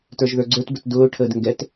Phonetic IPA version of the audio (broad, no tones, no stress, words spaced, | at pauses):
tə˞ʒðə˞ɡ͡ǀə˞tbət dʊːʈʰəːd ŋɡɛt